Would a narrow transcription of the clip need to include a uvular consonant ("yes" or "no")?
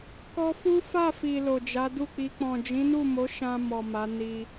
no